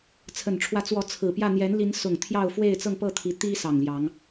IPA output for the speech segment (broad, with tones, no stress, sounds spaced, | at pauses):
t͡sʰ ə˨˩ n ʈ͡ʂʰ w ä˨˦ t͡s w ɔ˨˦ t͡sʰ ɹ̩˨˩ p j ä˥˨ n̪ j ɛ˨˦ n l i˨˦ n s ʊ˨˩ ŋ t̪ʰ j ɑ˥˨ ʊ̯ f w e˥˨ ɪ̯ t͡s ɤ˥˨ ŋ p ɤ˥˨ t̪ʰ i˨˦ t̪ i˦ s ɑ˨˩ ŋ l j ɑ˨˦ ŋ